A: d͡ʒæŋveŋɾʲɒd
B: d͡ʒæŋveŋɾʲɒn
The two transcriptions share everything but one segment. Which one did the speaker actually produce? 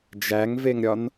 B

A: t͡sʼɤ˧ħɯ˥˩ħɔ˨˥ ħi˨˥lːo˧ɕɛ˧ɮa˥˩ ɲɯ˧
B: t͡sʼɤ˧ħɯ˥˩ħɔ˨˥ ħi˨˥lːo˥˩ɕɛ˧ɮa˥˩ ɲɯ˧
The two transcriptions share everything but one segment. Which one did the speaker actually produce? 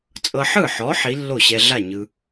B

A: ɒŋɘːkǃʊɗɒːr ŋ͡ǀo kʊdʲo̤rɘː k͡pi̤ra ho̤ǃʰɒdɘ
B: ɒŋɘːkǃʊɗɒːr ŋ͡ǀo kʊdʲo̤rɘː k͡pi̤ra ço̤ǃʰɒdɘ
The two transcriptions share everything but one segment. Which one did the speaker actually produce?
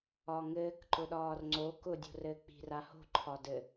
A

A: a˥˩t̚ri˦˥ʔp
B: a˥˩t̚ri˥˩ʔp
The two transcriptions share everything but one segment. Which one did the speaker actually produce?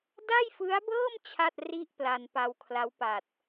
B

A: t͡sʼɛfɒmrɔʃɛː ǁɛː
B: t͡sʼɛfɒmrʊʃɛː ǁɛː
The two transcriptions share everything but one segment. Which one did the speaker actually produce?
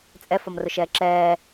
B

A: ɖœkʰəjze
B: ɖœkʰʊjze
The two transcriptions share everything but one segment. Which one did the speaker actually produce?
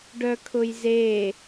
B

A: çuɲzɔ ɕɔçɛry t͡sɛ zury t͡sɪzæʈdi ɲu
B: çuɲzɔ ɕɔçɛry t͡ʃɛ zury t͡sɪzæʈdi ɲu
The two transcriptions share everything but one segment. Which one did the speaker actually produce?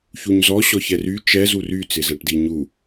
B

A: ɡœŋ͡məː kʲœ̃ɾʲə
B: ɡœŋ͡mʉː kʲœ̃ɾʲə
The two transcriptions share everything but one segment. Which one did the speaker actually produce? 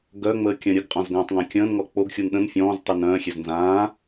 A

